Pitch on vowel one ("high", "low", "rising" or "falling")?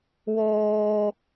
high